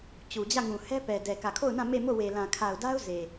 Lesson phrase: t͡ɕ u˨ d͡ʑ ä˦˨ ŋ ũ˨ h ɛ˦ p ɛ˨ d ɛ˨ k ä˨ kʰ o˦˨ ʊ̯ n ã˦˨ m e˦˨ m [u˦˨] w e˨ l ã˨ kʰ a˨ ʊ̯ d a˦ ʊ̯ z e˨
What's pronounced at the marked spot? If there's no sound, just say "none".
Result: o˦˨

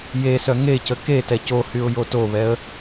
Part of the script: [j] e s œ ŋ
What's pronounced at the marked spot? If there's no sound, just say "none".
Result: j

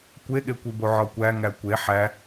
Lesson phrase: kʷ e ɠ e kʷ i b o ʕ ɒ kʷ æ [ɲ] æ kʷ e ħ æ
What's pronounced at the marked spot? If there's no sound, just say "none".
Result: ŋ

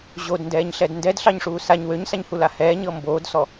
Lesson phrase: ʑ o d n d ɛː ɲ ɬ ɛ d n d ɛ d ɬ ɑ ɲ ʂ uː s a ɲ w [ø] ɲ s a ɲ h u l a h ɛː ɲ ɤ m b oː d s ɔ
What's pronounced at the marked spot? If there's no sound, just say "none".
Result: ø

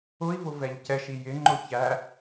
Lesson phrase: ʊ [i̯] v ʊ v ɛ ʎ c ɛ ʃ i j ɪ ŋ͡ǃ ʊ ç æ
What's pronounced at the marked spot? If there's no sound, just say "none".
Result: i̯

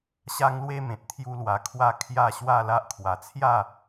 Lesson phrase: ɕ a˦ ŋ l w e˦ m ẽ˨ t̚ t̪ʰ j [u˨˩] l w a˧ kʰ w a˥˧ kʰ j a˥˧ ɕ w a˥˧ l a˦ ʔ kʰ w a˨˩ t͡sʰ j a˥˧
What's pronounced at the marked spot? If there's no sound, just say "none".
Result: u˦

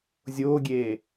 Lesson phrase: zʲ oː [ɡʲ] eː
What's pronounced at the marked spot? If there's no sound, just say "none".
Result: ɡʲ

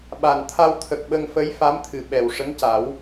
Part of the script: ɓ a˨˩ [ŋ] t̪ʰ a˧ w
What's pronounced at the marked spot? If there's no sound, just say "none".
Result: n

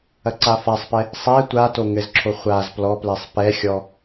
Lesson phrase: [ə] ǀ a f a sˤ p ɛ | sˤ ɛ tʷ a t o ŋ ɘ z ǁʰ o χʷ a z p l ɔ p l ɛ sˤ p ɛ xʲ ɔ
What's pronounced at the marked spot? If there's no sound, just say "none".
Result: ɐ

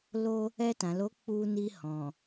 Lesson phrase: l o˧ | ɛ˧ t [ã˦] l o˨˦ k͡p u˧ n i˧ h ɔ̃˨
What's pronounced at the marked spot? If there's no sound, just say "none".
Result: ã˨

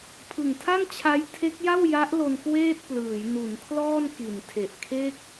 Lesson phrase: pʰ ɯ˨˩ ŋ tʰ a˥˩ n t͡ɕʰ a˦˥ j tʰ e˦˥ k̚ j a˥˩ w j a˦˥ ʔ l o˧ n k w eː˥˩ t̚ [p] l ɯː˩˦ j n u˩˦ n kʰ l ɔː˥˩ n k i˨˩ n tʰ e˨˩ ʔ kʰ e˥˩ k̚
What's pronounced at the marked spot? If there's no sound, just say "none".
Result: p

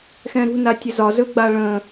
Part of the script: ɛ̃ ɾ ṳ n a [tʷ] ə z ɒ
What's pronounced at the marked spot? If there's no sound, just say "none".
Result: tʲ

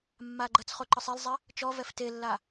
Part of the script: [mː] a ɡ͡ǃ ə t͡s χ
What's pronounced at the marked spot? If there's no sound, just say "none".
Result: mː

